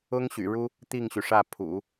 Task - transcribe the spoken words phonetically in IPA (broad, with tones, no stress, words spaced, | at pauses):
ʊ˥ŋɕy̰˨˩ɻu˥ | t̪i˥˩ŋɕy˩ʂä˥˩ pʰṵ˨˩˦